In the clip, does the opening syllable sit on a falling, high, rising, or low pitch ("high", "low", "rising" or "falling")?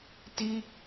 high